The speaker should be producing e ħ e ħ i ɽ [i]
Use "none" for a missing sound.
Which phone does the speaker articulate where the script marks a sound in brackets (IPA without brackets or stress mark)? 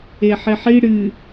ɨ